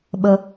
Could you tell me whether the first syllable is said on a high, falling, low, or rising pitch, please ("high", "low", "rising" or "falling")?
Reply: high